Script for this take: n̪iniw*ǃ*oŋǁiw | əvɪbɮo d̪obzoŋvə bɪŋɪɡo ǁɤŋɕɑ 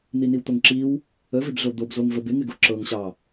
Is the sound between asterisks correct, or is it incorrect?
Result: incorrect